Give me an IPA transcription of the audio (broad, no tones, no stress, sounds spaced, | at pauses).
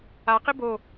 a q i b o